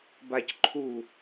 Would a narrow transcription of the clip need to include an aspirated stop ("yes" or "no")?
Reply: yes